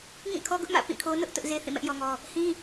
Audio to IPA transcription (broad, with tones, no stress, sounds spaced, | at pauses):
ŋ ĩ˦˨ kʰ ɔ˦ ɡ ʊ˦ ʔ m ä̰˦˨ p ĩ˦˨ kʰ o˦ n ʊ˦ ʔ t ʊ˦ ʔ z e˦ θ ĩ˦˨ m ɛ˦ ʔ j ɔ˦ ŋ ɔ˦ | h ĩ˦